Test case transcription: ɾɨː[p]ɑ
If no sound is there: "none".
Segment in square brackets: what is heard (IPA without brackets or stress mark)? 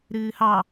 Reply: h